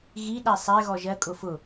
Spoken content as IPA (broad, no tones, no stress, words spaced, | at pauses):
ɣiɗæ sˤɛ ɣɔʒɜkʼʊ fʊ